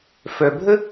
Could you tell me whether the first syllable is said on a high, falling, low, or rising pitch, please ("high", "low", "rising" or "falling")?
low